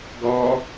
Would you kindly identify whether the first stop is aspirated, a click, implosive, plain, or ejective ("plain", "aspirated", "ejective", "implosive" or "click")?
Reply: plain